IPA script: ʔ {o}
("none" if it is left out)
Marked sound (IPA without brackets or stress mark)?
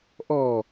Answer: ɔ